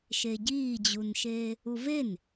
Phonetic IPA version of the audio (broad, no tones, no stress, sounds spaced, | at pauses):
ʃ e ɟ iː d͡ʑ u n ʃ eː | u v e n